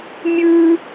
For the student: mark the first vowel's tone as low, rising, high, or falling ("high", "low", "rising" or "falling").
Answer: high